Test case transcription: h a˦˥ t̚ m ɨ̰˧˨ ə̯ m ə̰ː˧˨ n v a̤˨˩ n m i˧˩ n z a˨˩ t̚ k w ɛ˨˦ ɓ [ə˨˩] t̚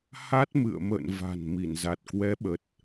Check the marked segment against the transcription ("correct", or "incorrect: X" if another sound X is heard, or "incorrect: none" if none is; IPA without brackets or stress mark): correct